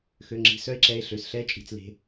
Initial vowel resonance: oral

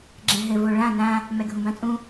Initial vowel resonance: nasal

